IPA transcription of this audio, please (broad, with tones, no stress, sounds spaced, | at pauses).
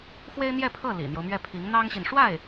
x w e˥ ɪ̯ n̪ j ɛ˥˧ pʰ ɤ˥˩ l ḭ˨˩ n̪ j o˦ ʊ̯ m ɥ ɛ˥˩ pʰ i˧˥ ŋ n̪ ɑ˥ ŋ ɕ i˨ n ʂ w a˥˩ ɪ̯